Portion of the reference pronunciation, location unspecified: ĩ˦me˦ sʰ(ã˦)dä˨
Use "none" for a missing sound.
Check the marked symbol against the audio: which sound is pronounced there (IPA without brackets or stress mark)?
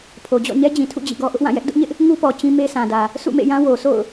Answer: ã˨